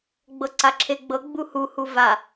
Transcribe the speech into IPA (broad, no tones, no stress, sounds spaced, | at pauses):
ɡ͡b ɤ ǀ a ǁʰ e ɡ͡b ɤ ɡ͡b u h u h u v a